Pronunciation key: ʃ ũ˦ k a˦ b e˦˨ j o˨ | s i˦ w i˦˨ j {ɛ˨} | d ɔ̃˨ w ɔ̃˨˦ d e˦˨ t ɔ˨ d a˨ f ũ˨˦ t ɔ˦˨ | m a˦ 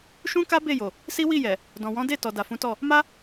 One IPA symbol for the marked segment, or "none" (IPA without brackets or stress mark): ɛ˨